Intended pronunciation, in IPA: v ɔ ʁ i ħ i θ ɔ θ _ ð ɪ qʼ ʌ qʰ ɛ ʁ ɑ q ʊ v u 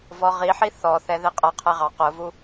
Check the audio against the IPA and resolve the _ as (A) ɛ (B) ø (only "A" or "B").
A